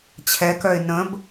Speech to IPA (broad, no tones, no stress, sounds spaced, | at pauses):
t͡ɕʰ ɛ k œ ɪ̯ n ə̃ b